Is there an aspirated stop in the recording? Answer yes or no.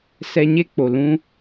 no